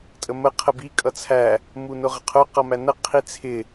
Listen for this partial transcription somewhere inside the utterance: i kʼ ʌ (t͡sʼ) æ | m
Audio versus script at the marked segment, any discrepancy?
yes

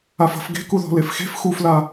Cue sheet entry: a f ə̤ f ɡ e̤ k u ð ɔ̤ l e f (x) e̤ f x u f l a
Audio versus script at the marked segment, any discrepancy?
no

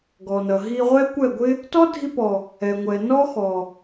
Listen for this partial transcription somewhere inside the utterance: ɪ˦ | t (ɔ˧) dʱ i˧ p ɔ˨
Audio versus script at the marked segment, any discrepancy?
yes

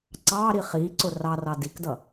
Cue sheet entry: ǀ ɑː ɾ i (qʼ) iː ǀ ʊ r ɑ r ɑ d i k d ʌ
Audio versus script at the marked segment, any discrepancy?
yes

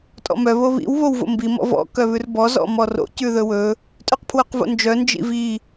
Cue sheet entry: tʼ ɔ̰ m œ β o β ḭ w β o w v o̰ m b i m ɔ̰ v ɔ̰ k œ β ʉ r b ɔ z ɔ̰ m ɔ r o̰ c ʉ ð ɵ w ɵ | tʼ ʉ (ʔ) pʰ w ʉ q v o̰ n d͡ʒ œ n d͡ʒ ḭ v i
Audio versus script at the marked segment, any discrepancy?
yes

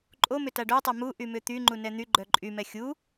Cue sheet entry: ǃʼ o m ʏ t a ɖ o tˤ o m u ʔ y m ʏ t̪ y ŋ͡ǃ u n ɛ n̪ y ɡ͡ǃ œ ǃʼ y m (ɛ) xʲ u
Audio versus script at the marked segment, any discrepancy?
no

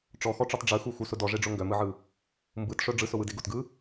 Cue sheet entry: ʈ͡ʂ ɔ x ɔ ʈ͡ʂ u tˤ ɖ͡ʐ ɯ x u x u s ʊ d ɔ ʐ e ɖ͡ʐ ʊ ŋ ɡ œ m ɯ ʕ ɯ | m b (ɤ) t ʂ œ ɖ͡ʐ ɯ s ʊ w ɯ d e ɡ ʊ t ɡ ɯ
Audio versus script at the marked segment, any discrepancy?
yes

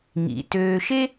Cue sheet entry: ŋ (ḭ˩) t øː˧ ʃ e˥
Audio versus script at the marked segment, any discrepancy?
no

